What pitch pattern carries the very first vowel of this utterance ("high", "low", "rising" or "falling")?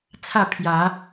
falling